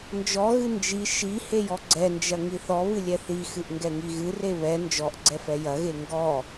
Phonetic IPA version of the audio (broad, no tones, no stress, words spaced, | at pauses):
nd͡ʒɔɣɨ nd͡ʒi ʃi hejɔɡ͡ǀɛnd͡ʒɐ ŋiθɔβɨ lʲɛθixɨʔ ŋɡɛŋiɣɨre βɛ nd͡ʒɔʔɡ͡ǀɛ fɛjɐɣe ŋɡɔ